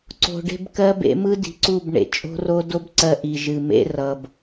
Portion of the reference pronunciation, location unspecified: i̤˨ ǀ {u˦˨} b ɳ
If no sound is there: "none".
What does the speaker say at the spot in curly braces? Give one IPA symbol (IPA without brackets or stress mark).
u˦˨